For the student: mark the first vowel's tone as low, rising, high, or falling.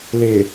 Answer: low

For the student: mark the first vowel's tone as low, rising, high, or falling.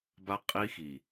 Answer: high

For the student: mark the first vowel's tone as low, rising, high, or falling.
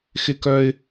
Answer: high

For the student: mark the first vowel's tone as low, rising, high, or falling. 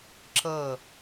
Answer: falling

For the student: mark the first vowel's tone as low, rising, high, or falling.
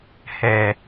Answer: low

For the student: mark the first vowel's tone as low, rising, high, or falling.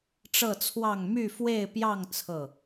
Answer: falling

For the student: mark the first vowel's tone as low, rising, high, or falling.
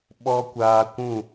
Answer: high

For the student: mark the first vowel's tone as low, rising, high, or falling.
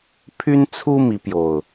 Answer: high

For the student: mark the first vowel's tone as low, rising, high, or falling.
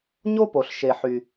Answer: high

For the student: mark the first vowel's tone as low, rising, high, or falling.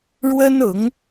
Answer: high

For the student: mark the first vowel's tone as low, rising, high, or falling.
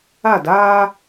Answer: falling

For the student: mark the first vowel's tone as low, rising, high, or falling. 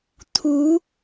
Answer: rising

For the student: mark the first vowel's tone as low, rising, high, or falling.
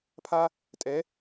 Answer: high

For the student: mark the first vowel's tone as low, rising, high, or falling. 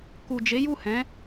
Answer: low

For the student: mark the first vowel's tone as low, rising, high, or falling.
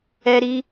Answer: high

